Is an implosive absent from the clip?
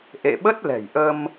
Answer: no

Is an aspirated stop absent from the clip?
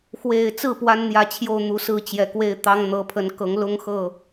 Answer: no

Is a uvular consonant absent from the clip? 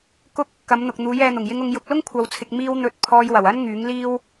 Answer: yes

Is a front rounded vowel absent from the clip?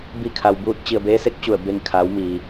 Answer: yes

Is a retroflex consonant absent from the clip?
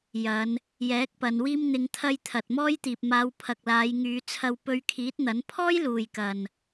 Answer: yes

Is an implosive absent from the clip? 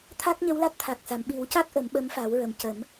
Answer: no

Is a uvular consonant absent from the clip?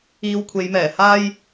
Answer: yes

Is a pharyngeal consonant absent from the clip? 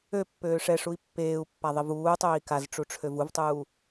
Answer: yes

